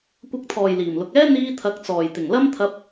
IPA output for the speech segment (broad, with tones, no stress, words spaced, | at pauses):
kʷɐ˨˥k̚t̪ʰɔː˨˩j liː˨˩mlʊ˨k̚ɛː˥ n̪iː˧t̪ʰɐ˨˥k̚t͡sɔː˨˩j t̪ɪ˨˩ŋlɐ˥mt̪ʰɐ˧p̚